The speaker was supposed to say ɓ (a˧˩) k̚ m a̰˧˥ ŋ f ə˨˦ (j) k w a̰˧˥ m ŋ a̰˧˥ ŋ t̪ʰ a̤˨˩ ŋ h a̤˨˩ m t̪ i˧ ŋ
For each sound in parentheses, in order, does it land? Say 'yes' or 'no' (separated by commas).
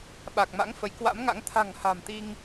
no, yes